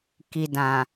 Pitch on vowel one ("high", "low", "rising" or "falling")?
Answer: low